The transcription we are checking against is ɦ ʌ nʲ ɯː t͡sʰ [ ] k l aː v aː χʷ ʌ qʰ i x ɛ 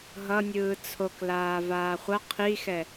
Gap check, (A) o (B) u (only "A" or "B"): A